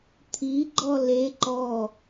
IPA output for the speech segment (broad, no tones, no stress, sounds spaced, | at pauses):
t̪ʰ i ɡ͡ǃ ɔ l e ǃ ɔ